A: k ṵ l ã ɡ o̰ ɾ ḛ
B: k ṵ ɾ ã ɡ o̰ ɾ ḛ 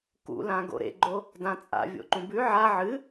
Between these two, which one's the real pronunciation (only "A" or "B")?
A